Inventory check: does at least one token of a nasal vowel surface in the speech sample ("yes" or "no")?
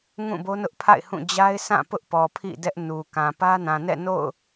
yes